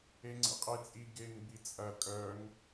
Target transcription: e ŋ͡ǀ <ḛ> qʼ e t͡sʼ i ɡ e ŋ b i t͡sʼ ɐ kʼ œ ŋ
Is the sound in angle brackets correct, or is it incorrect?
correct